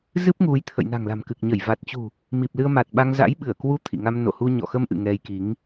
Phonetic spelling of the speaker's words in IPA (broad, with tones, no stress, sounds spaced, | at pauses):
z ɨ˦˥ p̚ ŋ u˨˦ j t̪ʰ ə̰˧˨ j n a̤˨˩ ŋ l a̤˨˩ m k ɨ˨˩ k̚ ɲ ə˧˩ j v a˨˩ t̚ t͡ɕ ṳ˨˩ | m i˨˩ p̚ l ɨ˧ ə̯ m a˨˩ t̚ ɓ a˧ ŋ z a̰˧˥ j ɓ ɨ˧˩ ə̯ k w u˧ t̪ʰ ḭ˧˨ ŋ a˧ m n o̰˧˨ h u˧ ɲ ɔ̰˧˨ x ə˧ m ʔ ɨ̰˧˨ ŋ ɛ˧ j k i˨˦ ŋ